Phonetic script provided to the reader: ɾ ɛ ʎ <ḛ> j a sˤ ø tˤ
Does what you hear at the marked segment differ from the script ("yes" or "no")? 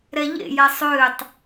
no